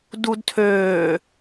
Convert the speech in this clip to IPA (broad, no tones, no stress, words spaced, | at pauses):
dudtʰøː